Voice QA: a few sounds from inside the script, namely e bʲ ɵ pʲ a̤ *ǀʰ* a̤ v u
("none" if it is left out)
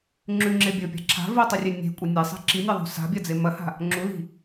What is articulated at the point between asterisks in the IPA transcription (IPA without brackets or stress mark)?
ǁʰ